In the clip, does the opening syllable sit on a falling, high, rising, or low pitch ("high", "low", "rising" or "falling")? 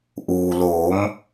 low